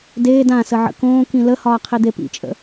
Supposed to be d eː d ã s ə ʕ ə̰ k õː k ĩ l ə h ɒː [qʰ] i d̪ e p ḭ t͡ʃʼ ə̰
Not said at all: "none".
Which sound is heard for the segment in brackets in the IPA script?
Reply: qʰ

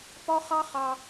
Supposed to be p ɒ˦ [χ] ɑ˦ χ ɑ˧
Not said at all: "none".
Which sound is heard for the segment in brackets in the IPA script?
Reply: χ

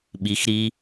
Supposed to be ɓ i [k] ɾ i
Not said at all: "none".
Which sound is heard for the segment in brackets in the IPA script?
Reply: x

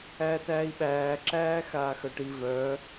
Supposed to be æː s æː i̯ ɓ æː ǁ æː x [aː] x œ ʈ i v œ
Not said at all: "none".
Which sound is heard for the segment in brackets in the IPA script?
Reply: aː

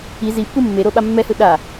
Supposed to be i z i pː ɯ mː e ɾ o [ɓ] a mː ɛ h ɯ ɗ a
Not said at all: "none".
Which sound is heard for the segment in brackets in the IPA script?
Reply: ɓ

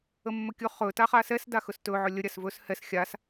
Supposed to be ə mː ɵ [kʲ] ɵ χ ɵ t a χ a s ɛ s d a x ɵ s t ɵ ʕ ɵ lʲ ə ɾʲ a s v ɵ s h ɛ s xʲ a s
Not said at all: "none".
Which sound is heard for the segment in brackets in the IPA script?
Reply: kʲ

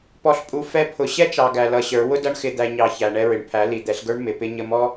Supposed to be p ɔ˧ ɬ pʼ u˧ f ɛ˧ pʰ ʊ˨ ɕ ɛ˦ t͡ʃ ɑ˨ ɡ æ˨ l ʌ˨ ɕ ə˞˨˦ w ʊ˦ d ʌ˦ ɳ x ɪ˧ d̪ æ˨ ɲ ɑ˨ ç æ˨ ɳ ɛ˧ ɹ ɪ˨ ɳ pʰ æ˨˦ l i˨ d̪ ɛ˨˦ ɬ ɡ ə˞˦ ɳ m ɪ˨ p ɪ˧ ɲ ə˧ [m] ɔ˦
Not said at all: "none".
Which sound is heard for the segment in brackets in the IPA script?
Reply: m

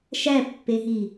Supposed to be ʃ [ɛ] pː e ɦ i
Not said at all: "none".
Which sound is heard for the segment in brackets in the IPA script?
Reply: æ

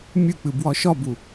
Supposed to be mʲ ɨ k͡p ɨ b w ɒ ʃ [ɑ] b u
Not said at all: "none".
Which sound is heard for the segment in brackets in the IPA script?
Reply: ɒ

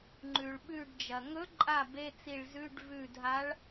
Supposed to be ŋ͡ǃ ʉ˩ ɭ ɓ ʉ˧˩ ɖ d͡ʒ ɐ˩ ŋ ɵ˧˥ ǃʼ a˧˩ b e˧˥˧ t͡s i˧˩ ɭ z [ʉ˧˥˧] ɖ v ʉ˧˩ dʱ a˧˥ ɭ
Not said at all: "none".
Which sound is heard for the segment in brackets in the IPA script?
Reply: ʉ˧˥˧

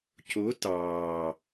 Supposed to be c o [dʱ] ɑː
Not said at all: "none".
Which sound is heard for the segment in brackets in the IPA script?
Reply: t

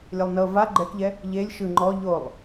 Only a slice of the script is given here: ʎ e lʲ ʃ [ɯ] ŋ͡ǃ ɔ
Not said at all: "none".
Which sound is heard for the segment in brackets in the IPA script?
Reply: ɯ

